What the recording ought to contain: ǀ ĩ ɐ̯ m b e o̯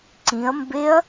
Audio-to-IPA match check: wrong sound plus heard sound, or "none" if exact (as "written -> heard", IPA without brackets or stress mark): o̯ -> ɐ̯